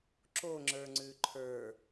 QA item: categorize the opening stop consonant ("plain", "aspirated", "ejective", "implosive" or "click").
click